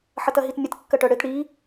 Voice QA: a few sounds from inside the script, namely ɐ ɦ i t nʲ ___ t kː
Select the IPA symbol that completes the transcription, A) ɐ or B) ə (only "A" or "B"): B